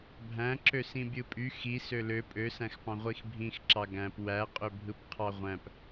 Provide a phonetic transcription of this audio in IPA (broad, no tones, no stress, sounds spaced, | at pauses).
bʱ æ̃ ǁ ø s ĩ bʲ ɯ pʼ y x i s ø l ø pʼ ø s æ̃ x p ɑ̃ ʁʷ i x bʱ ĩ x ǁ ɑ ɡ æ̃ p w æ qʼ ø bʱ ɯ p qʰ ɑ ʁʷ æ̃ p